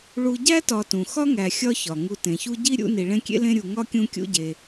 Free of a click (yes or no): yes